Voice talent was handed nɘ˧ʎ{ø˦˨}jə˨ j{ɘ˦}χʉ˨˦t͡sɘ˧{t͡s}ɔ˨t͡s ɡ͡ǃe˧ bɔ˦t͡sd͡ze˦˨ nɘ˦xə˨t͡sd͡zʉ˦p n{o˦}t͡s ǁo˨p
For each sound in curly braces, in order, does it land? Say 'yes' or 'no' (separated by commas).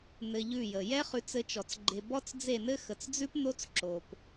no, no, no, yes